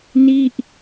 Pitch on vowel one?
falling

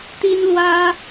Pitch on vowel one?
high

